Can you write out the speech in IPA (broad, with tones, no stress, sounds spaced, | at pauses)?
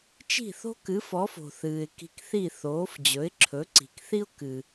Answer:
t͡ʃ i̤˥˩ θ o̤˥ k ɨ˩˥ f ɔ˩˥ f o̤˩ θ ɨː˩ ɪ̯ k i̤˧ k θ i˥˩ θ oː˩˥ f d͡ʑ ɵ˩˥ ɪ̯ ǁʰ ɵ˩˥ ǀ i̤˩ k θ i˥ ʊ̯ k ɨ˩